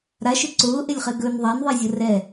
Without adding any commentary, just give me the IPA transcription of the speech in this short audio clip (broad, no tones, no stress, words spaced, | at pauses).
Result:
ɾaʃʏ ǀʊːʔelʲχɛ ɡɵn ðˤanðˤezʲə rɛ